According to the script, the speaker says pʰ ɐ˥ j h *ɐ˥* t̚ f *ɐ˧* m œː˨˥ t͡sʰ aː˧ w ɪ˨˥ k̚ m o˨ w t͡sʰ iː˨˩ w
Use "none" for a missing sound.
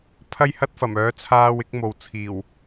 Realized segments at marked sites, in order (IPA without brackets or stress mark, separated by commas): ɐ˥, ɐ˨˩